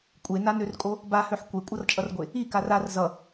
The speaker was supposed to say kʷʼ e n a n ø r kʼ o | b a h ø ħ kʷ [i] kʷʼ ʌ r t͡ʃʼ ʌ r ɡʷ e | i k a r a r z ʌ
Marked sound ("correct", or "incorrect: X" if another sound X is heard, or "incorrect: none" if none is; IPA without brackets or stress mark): incorrect: e